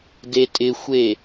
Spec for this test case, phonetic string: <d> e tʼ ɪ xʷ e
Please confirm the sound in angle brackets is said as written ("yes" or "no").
yes